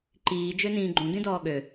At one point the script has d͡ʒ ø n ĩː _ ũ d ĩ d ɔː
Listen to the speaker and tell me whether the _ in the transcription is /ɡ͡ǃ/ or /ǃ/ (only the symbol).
ɡ͡ǃ